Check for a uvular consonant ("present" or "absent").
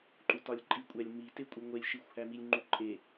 absent